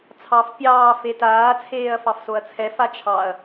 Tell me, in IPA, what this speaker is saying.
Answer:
t͡sʰ ɑ f pʲ ɑː f e t aː t͡sʰ eː ɐ̯ f ɑ f s o ɐ̯ t͡sʰ ɛ f a t͡ʃʰ ɑ ɐ̯

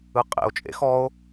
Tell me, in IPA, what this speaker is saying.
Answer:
ɯ qʼ ḛ o̯ t͡ʃʼ ḛ x ɔ o̯

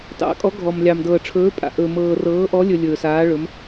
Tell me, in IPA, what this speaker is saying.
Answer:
t ɑ̰˧˥ kʼ ɔ˧˥ ɡʱ ɔ˧ m lʲ ɑ˧ m d ɤː˧ ʈ͡ʂʰ ɵː˧˥ pʼ a̰˧ ʔ ɵ˧ m ɤː˧ r ɤː˧˥ ʔ ɔ˧˥ lʲ ɵ˧ lʲ ɵː˧ s aː˧˥ ɭ ɵ˧˥ m

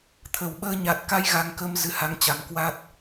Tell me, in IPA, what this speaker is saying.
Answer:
t̪ʰ ə˨˩ w ɓ əː˧ ɲ a˨˩ t̚ k a˧ j ɣ a˧ ŋ k ə˧ m z ɨ˨˦ h a˧ ŋ t͡ɕ a˨˩ m k w a˦˥ t̚

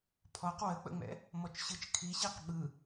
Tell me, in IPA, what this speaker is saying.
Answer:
pʰ ɔ q w ə k͡p ə̰ ŋ͡m ɛ̰ | m ɔ t͡ʃ ɕ ɯ t͡ʃ kʰ i ɕ i q ɓ ɯ

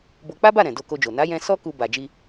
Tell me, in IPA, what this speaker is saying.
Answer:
b o˧ k͡p a˦ b a˦˨ ɾ ɛ̃˨ d o˧ k o˧ d͡ʒ o˨ n a˨˦ j ɛ̃˧ s ɔ˦ k u˧ b a˨ d͡ʒ i˧

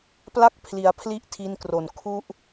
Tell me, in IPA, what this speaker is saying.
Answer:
p l a˥˩ k̚ pʰ l i˩˦ a̯ pʰ l i˥˩ ʔ tʰ i˧ n k r o˨˩ n kʰ u˥˩ ʔ

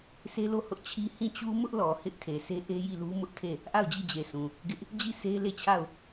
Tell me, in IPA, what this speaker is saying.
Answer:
sʰ e˦ l o˦˨ h ʊ˦ ʔ t͡ɕʰ i˦ h ĩ˦˨ t͡ɕ u˦ m ʊ˦ ʔ l ɔ˨ h ɪ˦ ʔ tʰ e˨ sʰ e˦ ʔ e˦ j i˦˨ l u˦ m ʊ˦ ʔ tʰ e˦˨ | ʔ a˦˨ ʊ̯ d͡ʑ i˦˨ d͡ʑ e˨ s ũ˨ | ɡ ɪ˦ ʔ | d͡ʑ i˦˨ s e˦ l e˦˨ t͡ɕʰ a˦˨ ʊ̯

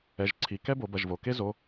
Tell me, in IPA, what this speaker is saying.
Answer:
ɛ˩˧˩ ʒ ǀʰ i˩˧˩ k ɛ˥ b o˩˧ b ɐ˩˧˩ ʒ v o˩ k e˥ z o˩˧˩

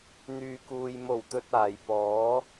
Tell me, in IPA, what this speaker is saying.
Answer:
n̪ yː˨ k uː˨ j m o˨˩ w t̪ ɵ˨ t̚ aː˨ j p ɔː˨˥

